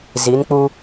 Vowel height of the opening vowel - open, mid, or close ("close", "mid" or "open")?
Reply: close